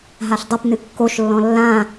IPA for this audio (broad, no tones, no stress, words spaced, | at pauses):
ɦaɬdˤɘpnɨ kːoʃlːɔ̃ lːã